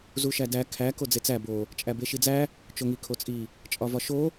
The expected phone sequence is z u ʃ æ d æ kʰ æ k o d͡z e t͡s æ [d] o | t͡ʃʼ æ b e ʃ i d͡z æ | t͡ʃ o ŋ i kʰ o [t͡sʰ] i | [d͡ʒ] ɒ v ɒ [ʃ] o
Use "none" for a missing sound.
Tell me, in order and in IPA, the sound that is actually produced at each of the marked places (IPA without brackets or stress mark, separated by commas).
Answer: b, t͡sʼ, t͡ʃʼ, ʃ